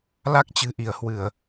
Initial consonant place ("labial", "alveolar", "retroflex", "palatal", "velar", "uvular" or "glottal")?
alveolar